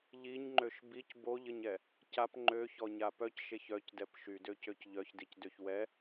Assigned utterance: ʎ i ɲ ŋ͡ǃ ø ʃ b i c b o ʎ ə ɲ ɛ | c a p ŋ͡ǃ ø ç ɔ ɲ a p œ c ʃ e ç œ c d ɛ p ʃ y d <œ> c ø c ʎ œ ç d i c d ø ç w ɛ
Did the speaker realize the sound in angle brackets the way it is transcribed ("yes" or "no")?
no